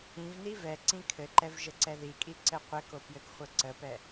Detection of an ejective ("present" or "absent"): present